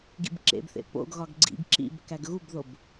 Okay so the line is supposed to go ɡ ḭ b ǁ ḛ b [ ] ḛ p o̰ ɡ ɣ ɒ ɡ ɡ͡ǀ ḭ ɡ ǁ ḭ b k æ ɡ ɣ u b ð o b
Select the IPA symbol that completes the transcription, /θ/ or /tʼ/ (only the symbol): θ